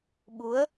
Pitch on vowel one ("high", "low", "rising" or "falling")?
rising